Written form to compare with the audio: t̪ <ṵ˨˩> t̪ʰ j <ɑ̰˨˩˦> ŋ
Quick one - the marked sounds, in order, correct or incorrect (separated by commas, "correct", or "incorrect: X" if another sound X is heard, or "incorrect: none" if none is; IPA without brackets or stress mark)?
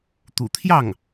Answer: correct, incorrect: ɑ˥˩